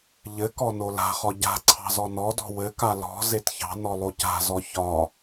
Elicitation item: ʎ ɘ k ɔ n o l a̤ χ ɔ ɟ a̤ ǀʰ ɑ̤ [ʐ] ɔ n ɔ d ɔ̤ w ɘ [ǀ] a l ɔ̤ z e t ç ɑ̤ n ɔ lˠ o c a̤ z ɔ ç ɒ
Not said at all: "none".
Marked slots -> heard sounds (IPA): z, k

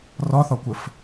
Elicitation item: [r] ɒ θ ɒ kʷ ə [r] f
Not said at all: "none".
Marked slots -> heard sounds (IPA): r, none

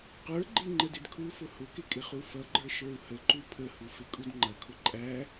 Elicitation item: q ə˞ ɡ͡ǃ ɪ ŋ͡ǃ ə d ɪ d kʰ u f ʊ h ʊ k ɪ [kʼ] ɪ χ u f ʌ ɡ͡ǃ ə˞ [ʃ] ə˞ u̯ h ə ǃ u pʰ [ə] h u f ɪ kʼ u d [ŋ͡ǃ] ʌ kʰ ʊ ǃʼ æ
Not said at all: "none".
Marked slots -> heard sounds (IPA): kʼ, ʃ, ə, ŋ͡ǃ

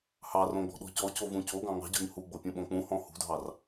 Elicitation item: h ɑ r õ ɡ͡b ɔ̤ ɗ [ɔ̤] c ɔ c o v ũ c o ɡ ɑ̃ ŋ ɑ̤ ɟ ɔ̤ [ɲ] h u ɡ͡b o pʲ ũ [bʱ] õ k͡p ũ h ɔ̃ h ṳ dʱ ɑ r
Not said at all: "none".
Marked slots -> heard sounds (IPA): ɔ̤, ɲ, ɓ

